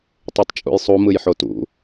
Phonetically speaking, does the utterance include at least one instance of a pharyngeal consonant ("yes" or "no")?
yes